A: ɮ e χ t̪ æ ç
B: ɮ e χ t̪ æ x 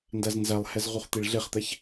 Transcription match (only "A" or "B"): A